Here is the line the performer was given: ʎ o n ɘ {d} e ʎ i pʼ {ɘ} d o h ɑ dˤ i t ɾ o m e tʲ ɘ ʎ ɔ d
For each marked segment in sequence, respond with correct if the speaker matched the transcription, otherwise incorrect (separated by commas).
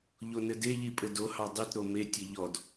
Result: correct, correct